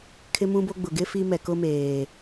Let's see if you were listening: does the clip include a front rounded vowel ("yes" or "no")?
no